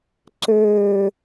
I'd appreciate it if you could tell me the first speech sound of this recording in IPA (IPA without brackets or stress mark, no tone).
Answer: ǀ